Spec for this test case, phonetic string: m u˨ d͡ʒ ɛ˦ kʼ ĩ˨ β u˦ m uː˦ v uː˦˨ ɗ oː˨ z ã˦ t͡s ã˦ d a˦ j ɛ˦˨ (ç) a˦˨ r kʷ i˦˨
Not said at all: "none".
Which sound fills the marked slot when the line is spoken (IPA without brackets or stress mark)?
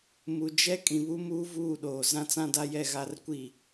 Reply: ɣ